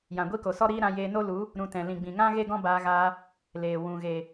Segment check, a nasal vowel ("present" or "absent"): present